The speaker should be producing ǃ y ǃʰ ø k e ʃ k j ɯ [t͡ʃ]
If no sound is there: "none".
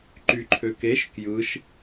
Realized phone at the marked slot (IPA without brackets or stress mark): ʃ